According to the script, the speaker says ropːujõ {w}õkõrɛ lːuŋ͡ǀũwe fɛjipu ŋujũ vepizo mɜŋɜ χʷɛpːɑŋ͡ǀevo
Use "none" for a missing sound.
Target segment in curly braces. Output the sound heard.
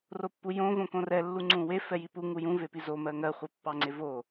v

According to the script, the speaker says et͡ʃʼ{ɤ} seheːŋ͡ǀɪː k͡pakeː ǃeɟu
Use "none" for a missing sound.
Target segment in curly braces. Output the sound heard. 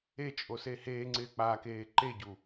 o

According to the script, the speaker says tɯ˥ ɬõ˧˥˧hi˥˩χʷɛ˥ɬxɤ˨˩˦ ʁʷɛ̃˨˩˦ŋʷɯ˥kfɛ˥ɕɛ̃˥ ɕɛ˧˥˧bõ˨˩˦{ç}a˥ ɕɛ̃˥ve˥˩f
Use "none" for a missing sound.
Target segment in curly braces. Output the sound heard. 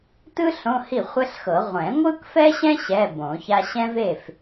ç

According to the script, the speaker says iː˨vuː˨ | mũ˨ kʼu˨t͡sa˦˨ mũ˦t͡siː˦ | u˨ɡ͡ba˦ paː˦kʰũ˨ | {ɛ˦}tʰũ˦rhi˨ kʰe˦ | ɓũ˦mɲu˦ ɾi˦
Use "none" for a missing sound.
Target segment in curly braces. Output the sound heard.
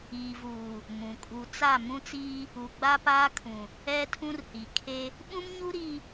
ɛ˦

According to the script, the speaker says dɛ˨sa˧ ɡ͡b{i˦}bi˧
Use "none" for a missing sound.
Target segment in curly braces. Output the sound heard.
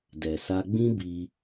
ĩ˦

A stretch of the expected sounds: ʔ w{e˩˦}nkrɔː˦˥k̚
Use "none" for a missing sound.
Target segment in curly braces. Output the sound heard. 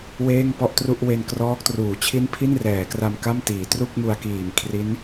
e˧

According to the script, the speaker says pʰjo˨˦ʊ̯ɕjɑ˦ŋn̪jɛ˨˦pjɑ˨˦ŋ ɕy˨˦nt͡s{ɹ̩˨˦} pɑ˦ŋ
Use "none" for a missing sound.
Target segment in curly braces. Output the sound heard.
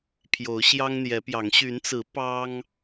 ɹ̩˨˦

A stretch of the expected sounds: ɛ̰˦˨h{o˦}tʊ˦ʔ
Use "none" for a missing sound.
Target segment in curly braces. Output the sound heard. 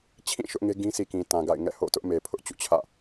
o̰˦˨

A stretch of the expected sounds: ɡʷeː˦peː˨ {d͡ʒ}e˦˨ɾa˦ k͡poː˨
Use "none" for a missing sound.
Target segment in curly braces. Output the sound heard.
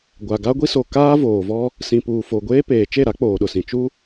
t͡ʃ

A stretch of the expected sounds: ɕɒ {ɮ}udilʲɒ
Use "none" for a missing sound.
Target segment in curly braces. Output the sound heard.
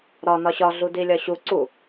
ɮ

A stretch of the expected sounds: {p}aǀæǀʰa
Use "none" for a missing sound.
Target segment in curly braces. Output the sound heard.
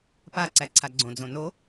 p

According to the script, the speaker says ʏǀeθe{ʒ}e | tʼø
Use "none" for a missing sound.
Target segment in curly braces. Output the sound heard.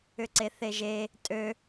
ʒ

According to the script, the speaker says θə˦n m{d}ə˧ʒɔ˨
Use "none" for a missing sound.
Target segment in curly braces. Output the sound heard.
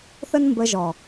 b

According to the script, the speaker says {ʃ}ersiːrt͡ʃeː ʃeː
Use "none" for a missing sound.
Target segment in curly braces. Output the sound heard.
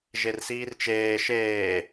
ʒ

